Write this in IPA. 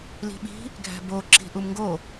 l i̤ ɓ i̤ | ɡʱ æ̤ b o ǁ i̤ ʔ u m ŋ ɡ o

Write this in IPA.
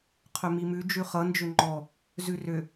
qʰ ʏ m i m ʉ d͡ʒ ʉ χ ʌ n d͡ʒ ʏ ŋ͡ǃ ɔ | z ʉ r ʏ

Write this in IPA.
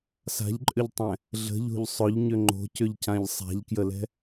s a̤ ʎ ǃʼ ʏ ʎ tˤ ɛ̃ | ɮ ə̤ ʎ o̤ ʎ sˤ ʊ ʎ ɲ ʏ ŋ͡ǃ o̤ c ʏ ʎ c ã ʎ sˤ a̤ ʎ k j ə l ɛ̤

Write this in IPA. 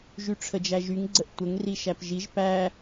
ʒ y ʈ͡ʂʰ ə d͡ʒ æ ʒ y ŋ ɡ͡ǀ ə ʔ tʷ ə ŋ r i ʃ æ p ʒ i ʒ p æ

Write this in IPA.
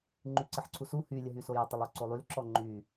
ŋ͡ǃ y ǀ ə ħ ǀʰ u s u h y lʲ ə ɦ y s o j ə tˤ ə lˠ o ǀ o lˠ y l ǁ ɔ ŋ͡ǃ y

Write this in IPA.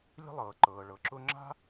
lʲ ə̤˥ lˠ ɤː˩ ǃ ɤː˩ ɭ ɤ˩ ǁ ʊ˥ ŋ͡ǁ a̤˥

